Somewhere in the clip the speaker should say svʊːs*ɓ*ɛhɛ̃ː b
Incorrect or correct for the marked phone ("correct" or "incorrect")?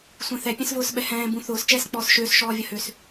correct